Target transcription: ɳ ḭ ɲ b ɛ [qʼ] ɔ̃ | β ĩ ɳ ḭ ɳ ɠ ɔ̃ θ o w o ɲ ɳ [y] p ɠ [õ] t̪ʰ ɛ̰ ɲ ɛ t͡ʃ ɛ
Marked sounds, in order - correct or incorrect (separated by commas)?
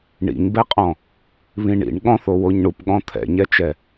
correct, incorrect, incorrect